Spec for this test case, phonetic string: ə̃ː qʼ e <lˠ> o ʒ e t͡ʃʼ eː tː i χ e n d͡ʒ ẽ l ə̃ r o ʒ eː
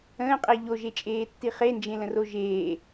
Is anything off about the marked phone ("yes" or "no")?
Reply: yes